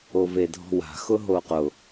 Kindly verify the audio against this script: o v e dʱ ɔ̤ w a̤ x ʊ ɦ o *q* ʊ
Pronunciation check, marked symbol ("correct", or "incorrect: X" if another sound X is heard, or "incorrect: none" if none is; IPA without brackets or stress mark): correct